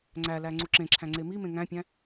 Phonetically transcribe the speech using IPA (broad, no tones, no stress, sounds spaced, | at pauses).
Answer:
ŋ͡ǀ æ l æ ŋ͡ǀ u ǁ ẽ ǁʰ æ̃ ŋ͡ǀ e m i m ẽ ŋ æ̃ pʲ æ̃